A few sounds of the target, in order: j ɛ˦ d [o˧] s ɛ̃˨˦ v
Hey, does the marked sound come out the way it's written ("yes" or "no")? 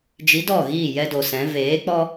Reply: no